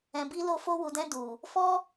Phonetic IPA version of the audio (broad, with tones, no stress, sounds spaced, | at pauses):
ɛ̃˨ b i˧ l o˧ f o˧ w u˨ d ɛ̃˧ d u˨ | f ɔ˦